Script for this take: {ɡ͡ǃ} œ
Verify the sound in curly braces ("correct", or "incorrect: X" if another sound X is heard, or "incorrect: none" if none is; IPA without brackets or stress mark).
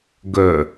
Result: incorrect: ɡ